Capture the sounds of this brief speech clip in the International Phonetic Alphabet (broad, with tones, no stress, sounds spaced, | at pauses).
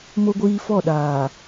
m o˦ ɡʷ iː˦ f ɔ˦˨ ɗ aː˨